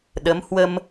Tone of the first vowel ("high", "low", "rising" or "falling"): rising